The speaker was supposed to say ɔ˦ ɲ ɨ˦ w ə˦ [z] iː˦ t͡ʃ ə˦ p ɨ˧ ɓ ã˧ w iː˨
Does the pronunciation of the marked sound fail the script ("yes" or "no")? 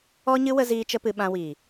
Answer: no